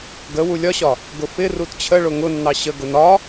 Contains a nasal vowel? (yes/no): no